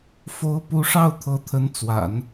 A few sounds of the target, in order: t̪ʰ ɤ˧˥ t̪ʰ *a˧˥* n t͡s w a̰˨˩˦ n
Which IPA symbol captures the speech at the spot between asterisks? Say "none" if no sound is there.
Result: ə˧˥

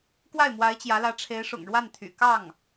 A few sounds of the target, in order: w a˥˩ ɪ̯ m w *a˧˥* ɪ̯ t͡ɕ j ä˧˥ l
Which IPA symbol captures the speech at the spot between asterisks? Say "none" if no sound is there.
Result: a˧˥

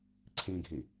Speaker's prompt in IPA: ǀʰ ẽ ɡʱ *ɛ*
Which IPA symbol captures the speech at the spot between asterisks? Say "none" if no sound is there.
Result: e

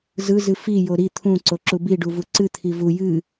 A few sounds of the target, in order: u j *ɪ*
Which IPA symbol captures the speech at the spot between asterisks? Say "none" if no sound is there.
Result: ɨ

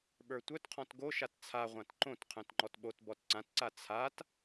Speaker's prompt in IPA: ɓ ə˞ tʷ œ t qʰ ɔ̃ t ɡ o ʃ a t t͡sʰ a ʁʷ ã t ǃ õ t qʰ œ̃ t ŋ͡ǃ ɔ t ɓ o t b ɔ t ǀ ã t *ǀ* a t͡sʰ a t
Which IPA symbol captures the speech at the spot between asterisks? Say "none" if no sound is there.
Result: ǀ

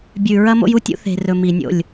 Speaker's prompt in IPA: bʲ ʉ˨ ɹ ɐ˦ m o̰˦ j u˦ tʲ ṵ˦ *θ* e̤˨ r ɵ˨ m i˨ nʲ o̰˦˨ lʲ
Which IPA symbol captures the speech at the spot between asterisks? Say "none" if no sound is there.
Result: θ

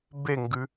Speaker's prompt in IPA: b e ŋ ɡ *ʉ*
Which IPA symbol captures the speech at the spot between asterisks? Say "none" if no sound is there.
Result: ʉ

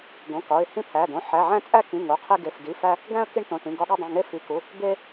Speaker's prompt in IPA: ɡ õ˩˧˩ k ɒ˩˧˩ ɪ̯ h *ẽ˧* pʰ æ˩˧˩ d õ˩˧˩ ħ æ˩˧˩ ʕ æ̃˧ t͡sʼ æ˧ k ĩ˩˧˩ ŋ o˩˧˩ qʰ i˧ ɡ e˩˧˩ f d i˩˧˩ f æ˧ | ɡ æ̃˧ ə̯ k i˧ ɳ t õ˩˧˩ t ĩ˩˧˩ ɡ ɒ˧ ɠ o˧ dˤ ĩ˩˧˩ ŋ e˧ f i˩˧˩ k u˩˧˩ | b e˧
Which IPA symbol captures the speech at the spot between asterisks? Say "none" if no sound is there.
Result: ĩ˧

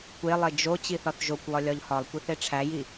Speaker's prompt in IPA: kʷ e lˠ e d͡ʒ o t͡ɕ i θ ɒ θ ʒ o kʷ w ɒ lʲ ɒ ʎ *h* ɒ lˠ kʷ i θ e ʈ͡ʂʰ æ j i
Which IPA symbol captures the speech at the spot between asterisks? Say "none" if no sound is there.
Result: h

